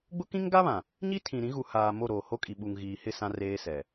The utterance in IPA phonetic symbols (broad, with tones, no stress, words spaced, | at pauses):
ɡ͡bʊ˦kĩ˦ŋɡa˦βã˨ | ɲi˦tʰĩ˨ ɾĩ˨˦ɣu˨haː˨ mo˦˨ɾoː˨ho˦kʼi˨ ɓu˨ŋ ɣiː˨hɪ˦˨ sã˦reː˦sɛ˨